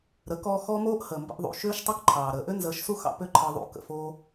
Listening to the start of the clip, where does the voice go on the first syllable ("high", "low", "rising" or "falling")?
rising